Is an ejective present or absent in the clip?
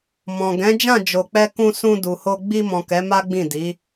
absent